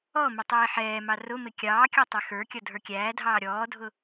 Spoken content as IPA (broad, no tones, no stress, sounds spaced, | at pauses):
ɔ m ɪ tˤ iː ħ ɛː m ɑ r ʊ m ɪ kʲ ɑː kʲ ɔ tˤ ɛ x ə˞ kʲ ʌ dʱ ə˞ kʲ æː dʱ ɑː ɾʲ ɔː dʱ ʊ